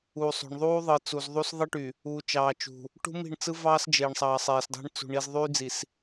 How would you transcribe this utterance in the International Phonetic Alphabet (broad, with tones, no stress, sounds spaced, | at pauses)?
uː˨ sˤ o̤˨ ɳ ðˤ uː˦ ðˤ ɯ˨ t͡s u˨ z ðˤ u˦ s ðˤ ɯ˦ ʈ y˨ | uː˨ t͡ʃ ɑː˨ t͡ʃ ṳ˨ | ʈ ṳ˦ m i̤˦˨ ɳ t͡s ɯ˦ v ɑː˦ s d͡ʒ eː˨ ɳ sˤ ɑː˨ sˤ eː˨ s dˤ e̤˦ ɳ t͡s ṳ˨ ɳ i˨ z ðˤ yː˦ d͡z i˨ s